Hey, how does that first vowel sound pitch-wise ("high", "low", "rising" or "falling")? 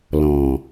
low